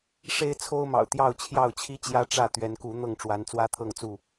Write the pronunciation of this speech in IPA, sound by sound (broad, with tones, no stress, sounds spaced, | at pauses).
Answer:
ʂ e˦ ɪ̯ t͡sʰ o˦ ʊ̯ m ɑ̰˨˩ ʊ̯ t̪ j ɑ˥˨ ʊ̯ t͡ɕʰ j ɑ˥˨ ʊ̯ t͡ɕʰ i˦ t͡ɕ j ä˦ ʈ͡ʂ ä˥˨ t̪ ɥ ɛ˨˦ n k u˨˦ n̪ ɤ˥˨ ŋ ʈ͡ʂ w a˨˦ n t͡s w ä˦ t̪ʰ ɤ˥˨ ŋ t͡s u˥˨